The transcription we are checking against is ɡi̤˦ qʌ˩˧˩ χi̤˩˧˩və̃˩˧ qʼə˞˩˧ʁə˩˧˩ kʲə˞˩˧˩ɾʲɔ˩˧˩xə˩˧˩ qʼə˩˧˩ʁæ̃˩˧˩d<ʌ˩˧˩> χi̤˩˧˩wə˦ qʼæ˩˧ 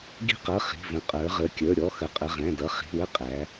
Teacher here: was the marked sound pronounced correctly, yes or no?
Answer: yes